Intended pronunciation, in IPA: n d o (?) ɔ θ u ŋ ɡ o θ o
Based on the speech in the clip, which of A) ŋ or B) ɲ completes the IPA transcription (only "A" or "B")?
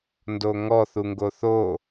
A